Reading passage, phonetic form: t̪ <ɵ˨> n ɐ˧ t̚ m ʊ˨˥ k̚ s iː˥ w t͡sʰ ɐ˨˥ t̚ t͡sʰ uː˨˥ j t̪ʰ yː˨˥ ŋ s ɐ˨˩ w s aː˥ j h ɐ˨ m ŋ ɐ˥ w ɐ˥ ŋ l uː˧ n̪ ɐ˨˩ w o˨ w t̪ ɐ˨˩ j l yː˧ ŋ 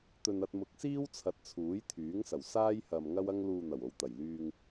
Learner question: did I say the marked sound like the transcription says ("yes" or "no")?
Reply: no